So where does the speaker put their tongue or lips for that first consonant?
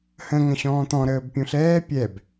throat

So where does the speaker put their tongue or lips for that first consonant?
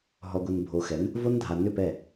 throat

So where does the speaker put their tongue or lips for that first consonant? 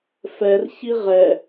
lips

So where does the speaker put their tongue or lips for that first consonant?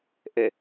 throat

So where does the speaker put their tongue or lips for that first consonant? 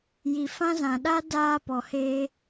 palate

